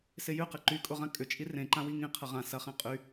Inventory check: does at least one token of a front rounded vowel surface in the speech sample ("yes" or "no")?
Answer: yes